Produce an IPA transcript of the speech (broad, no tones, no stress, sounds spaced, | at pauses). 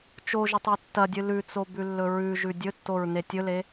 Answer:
t͡ʃ o ʒ ɵ tˤ e tː ɐ dʲ ɨ l ʉ t͡s o b ʉ lː ɵ ɹ ʉ ʒ ʉ dʲ ɵ tː o ɹ n e tʲ ɵ l e